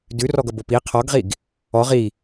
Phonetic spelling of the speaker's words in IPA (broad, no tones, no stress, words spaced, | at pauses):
dʉrɔɡʌ bopi qʰɔɡʁiɡ | ɔʁ i